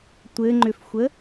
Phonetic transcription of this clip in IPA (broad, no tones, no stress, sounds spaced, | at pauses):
tʷ ɘ ŋ͡ǃ ʏ f xʷ ə